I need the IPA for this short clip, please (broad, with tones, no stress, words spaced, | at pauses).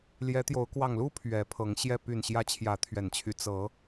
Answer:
ljɛ˨˦t̪jo˨˦ʊ̯ kwɑ˨˩ŋlu˦ pʰɥɛ˨˦pʰɤ˨˦ŋɕjɛ˥˨ py˨˩nɕjä˨˦ t͡ɕʰjä˨˦t̪ʰɥɛ˨˩nt͡ɕʰy˨˦ t͡sɤ˨˦